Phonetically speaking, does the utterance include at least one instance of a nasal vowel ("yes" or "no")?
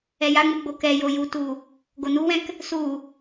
yes